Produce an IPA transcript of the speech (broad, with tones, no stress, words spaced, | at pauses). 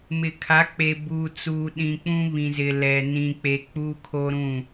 mɪ˨kʰa˨˦k͡pe˨ buː˨t͡suː˨ɗĩ˨ k͡pũ˦βĩ˨ zɪ˨lɛ˨ nĩ˨k͡pe˨ k͡puː˦kʰo˦ɾũ˦˨